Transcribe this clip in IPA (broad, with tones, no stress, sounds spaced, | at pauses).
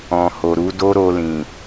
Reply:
ɔ̃˨ h o˨ ɾ u˨˦ d o˦ ɾ o˧ l ĩ˨